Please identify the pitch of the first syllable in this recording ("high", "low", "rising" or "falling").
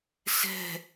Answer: falling